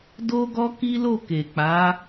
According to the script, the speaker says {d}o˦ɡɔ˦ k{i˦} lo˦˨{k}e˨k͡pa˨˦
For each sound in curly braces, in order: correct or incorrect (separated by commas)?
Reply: correct, correct, correct